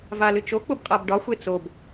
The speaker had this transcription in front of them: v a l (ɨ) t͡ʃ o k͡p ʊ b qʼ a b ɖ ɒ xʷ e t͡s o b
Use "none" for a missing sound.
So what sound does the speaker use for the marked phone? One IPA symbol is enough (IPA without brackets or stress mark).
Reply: ɨ